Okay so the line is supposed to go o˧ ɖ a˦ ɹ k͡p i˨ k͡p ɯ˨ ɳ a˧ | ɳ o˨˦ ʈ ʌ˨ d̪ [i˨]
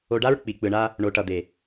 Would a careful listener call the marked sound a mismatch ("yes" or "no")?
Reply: yes